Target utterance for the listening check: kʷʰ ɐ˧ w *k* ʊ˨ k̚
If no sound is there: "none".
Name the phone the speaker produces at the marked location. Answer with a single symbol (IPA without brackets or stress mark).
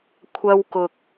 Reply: k